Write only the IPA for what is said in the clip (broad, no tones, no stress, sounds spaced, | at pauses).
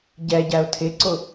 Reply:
ɟ ɛ ɟ æ ʊ̯ tʰ ɪ ǀ ʊ